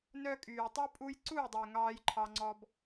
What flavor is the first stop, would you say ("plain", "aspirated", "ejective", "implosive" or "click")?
ejective